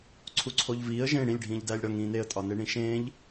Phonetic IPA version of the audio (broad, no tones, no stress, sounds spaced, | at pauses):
ǀʰ u ǀʰ o ʎ v iː ə̯ ʒ ẽ ɽ ĩ lʲ ɖʱ ĩː ʎ d æː lʲ ɽ ɒ ŋ ĩː n e ə̯ tʼ ɒ n e ɳ ĩ ʃ ẽː ʎ